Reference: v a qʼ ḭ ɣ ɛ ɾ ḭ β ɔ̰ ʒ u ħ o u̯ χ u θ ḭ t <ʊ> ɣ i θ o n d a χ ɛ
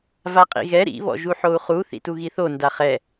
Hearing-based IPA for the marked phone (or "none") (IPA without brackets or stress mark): u